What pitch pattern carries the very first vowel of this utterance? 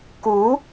rising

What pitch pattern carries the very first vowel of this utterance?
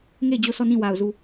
falling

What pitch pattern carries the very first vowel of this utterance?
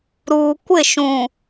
low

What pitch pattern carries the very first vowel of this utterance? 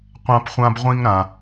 high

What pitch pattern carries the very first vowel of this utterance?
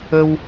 high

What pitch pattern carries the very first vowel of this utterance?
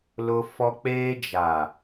high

